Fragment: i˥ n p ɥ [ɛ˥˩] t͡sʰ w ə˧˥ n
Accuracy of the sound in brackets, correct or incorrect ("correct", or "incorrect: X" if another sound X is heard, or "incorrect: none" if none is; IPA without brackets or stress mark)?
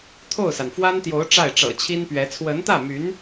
incorrect: ɛ˧˥